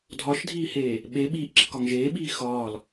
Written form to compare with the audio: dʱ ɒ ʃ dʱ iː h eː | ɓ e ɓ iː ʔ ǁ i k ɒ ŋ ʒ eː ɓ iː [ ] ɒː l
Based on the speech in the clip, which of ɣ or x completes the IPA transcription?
x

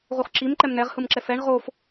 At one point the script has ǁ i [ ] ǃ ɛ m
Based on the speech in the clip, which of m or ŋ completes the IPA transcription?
m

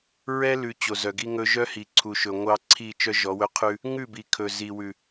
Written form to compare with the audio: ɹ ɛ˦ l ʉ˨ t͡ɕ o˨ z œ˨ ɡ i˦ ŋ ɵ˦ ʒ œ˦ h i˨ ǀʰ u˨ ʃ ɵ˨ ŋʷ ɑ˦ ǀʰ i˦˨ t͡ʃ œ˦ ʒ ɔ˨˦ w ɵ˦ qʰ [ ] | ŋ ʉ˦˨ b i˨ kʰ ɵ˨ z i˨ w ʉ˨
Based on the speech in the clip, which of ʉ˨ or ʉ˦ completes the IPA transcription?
ʉ˦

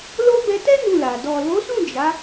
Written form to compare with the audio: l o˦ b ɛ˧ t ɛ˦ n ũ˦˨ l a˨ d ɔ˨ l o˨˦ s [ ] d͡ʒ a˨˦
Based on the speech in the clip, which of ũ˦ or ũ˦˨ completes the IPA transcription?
ũ˦˨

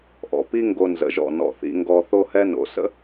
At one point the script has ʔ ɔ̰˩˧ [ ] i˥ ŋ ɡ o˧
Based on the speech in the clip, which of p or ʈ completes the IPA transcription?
p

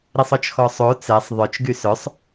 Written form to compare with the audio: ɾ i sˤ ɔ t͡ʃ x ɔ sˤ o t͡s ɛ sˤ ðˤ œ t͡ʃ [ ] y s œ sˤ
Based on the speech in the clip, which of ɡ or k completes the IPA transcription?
ɡ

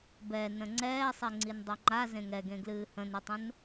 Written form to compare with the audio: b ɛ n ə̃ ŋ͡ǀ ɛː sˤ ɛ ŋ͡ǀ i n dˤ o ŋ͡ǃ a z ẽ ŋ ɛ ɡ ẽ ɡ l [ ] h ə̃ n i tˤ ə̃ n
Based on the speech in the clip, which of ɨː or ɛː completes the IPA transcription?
ɨː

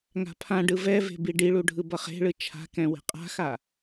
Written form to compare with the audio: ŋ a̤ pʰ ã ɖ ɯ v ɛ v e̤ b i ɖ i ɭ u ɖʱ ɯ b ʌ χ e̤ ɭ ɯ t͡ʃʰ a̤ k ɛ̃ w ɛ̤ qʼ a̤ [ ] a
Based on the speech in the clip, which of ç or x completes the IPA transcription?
x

